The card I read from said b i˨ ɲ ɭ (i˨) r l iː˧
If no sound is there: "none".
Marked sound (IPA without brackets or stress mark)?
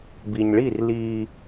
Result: i˦˨